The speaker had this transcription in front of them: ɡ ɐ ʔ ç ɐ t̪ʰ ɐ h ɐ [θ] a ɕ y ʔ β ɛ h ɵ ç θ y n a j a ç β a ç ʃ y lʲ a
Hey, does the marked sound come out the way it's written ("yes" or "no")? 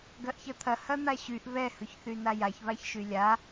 no